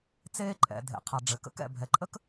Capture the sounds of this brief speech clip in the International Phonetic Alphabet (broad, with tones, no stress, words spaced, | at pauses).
t͡seː˥ǃʼɛ̰˩ dʱḛ˩qʰa˩ ɖ͡ʐɘ˩kə̰˥kɛ̰˩ bʱɛ˩ǃʼə˥k